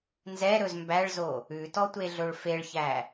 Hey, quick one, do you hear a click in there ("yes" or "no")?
no